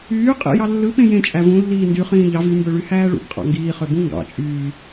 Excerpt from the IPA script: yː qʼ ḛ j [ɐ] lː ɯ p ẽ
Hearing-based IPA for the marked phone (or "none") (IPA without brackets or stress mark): ɑ